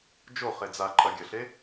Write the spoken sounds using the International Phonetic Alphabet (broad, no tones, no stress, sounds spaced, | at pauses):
d͡ʒ o χ e d͡z a ǃʼ ɐ ɡʲ ɐ ɬ e